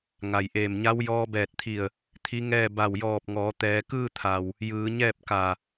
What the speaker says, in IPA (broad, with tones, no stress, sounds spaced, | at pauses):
ŋ a˩ j ʔ eː˧˩ m ɲ a˧˥ w j ɔː˧ b ɛː˧˩ t̚ t̪ʰ i˧˩ ə̯ | t̪ʰ i˧˥ ŋ ɛː˥˨ b a˧˩ w j ɔː˧˩ p̚ ŋ ɔː˩˧ t̪ ɛː˩˧ k ɯː˥˨ t̪ʰ a˩ w | j ɯː˩˧ ɲ ɛː˥˨ p̚ k a˧˩